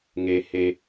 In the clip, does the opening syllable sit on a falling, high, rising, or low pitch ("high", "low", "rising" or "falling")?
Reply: low